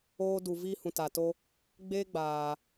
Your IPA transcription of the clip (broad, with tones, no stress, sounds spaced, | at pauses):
oː˧ d u˨ v iː˦ h ũ˨ t a˨ t o˦ | ɡ͡b eː˦ ɡ͡b aː˨